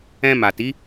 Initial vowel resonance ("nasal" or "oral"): nasal